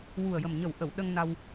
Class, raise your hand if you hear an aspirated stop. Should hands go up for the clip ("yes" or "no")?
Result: no